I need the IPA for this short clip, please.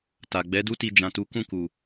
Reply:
t a˨ ɡ͡b ɛ˨˦ d u˦ t i˧ d͡ʒ ã˨ t u˨˦ k ũ˦˨ k u˨

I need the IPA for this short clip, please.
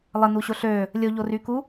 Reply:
lˠ ə n u ɕ o ɬ ø | lʲ o ʎ o r y k u

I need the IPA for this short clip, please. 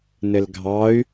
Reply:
n ɘ l ɡʱ ɑ y̯

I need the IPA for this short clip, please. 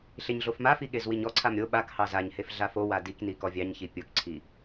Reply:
ɬ e ɲ ɮ o f m a f i ɠ e z w i ɲ ɔ ǀʰ a m ɾʲ o ɓ a k h ɑ z a ɲ h e f ɮ a f o w a d i k n i k ɔ vʲ ɑ ɲ ç i pʲ o k ǀʰ i

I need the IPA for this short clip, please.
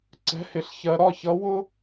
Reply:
ǀ ɛ̤˧˥˧ h ɪ˧˥ ɬ ç ɜ˧ ɾ ɒ˥˨ ç ʌ˧˥ w ʊ˥

